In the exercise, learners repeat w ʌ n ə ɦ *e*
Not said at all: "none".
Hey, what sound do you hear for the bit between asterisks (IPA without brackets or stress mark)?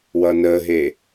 e